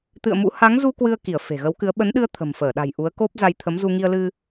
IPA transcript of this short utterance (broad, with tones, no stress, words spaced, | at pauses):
t̪ɨ̰˧˨ə̯mṵ˧˥ ha˨˦ŋzu˧ kwɨ˧ə̯ki˧˩ə̯ fe̤˨˩ɣə˨˦wkɨ˨˦ə̯ ɓə˨˦nɗɨ˧ə̯ t̪ʰə̤˨˩mfəː˧˩ɗa̤˨˩j ʔu˨˦ə̯ko˦˥p̚ za˧jt̪ʰə˨˦mzu˧ ŋi˧ə̯lɨ˧